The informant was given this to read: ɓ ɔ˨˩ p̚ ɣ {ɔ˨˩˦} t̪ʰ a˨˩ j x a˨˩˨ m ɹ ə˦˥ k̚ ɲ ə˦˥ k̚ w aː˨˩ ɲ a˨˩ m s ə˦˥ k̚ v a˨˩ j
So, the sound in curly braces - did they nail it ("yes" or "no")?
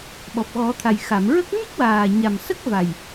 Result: yes